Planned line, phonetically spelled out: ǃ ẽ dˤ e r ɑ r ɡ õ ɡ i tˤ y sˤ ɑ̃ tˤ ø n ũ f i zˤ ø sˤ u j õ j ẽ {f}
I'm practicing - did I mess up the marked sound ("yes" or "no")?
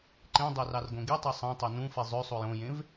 yes